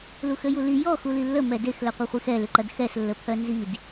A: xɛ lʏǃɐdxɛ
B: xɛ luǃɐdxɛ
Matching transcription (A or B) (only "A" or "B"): A